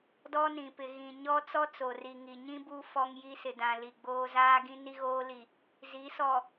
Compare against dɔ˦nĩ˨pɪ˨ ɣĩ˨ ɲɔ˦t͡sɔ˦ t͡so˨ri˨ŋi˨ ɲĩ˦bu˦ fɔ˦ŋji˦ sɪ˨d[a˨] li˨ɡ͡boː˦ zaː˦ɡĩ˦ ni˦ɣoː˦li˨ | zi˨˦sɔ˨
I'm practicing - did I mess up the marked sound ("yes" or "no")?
yes